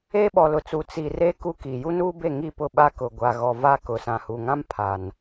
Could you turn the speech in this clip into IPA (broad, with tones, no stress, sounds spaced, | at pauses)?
eː˦ ɓ ɔ˨ l ʊ˨ t͡s u˨ t͡s i˨ r e˦ k u˦ k i˨ j u˦ n uː˦ b e˦˨ ŋ i˦˨ p ʊ˦˨ ɓ a˦ k ʊ˨ ɡʷ a˨ ɣ ɔ˨ v a˦ k ʊ˨ s ã˨ h u˨ ŋ ã˦ m pʰ a˨ n